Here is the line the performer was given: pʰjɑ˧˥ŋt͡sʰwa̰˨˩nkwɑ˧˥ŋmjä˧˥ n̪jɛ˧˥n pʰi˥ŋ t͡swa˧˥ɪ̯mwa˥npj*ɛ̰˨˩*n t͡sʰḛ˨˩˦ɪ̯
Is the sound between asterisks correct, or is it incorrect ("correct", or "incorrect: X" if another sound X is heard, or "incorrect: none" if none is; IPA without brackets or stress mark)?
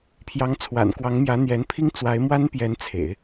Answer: incorrect: ɛ˧˥